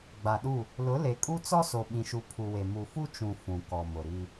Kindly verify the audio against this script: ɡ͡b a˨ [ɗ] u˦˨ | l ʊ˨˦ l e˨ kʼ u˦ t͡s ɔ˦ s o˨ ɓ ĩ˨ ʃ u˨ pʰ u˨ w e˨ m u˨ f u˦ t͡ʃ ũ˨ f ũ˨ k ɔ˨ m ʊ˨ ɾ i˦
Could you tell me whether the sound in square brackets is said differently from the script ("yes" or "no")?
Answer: no